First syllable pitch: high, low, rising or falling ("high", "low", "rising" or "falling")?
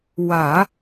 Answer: low